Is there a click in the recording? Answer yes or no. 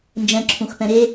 yes